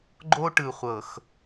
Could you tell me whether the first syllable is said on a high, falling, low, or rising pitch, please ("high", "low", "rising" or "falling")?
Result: high